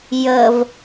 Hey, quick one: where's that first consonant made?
palate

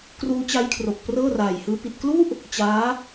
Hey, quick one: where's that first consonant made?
velum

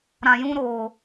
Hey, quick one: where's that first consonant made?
tongue tip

